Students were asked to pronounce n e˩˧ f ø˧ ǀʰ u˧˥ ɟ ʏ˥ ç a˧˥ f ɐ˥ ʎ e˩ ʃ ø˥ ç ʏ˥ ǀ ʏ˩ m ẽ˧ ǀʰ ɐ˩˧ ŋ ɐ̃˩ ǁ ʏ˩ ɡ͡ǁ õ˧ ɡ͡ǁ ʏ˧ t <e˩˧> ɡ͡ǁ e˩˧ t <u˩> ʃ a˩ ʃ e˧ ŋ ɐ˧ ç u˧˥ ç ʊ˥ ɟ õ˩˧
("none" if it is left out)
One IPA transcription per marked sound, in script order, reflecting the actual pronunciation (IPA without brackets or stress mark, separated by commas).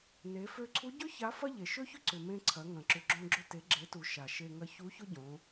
e˩˧, u˩